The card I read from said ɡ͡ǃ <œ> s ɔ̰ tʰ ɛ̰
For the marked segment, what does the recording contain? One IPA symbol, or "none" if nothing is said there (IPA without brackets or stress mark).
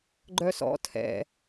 œ